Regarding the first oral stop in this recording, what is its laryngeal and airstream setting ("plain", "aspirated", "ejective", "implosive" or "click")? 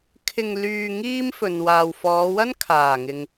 aspirated